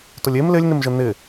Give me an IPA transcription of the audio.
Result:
tʊlʲem lɪlʲnɪmʒə nɪ

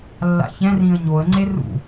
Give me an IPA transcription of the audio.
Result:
lːa̰çɛ̃ rĩə̯ɲoə̯ ŋ͡ǀerṵ

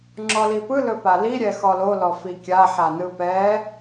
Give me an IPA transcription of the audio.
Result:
ŋ͡ǁɔlipɯ lɵpali ɾʲɛxɔlo lɔfikʲa ħanɯpɛ

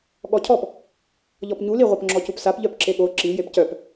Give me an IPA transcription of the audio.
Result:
ɠɔcʰɔp | ʎɔpɲuli ʁʷœpŋ͡ǁɔcupsap ʎœpǁeɠo ǁi jepcœp

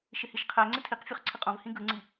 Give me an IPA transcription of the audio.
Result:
ʃɪhiʃqʰæŋ͡ǀɪ tʰiq fʲoχǀʰɪqʼõvhĩ ɡɯŋ͡ǀi

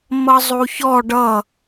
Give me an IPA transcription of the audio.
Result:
mʌzˤuçɔ ɖʌ

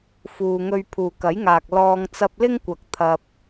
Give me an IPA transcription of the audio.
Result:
fuː˨ŋɵ˧ɥ pʰuː˨kɐ˨˥jŋaː˨k̚ lɔː˥ŋ t͡sɐ˧p̚lɪ˥ŋkʷɐ˨k̚ t̪ʰɐ˧p̚

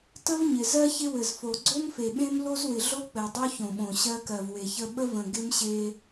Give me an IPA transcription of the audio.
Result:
tə˦vɲɪ˨zɜ˦ çɪ˦wɘ˨zfo˨ ɡ͡ǀo˦mfe˨ɓẽ˦m lo˦zwɪ˨ɮo˦ k͡pɘ˨ dˤo˦çõ˨ɓõ˨ ɕɜ˦kɜ˨vwe˨çə˦ ɓə˦və̃˨ ɡɪ˦mɕe˦

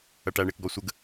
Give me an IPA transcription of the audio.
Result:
ɐʈæɳek ɡɔsʷəɡ

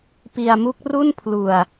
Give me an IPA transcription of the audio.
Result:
pi˧a̯mu˦˥k̚ ru˥˩npʰlu˧a̯

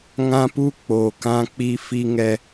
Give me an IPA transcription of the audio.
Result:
ŋã˦pu˦ k͡po˨kã˦k͡pi˦ fi˦ŋɛ˦

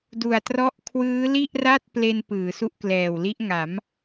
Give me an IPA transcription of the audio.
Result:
du˨˩a̯trɔ˦˥ʔ kʰwɯː˦˥li˥˩ʔra˥˩t̚ ple˧n pɯː˩˦su˦˥ʔklɛː˨˩wli˦˥ʔ ŋa˩˦m

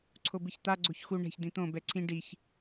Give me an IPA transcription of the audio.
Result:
ǀʰobɨçt̪a ɡ͡ǀoçxu ɳɛ̤ç dĩt̪õ bɛǀʰĩ ɖiç

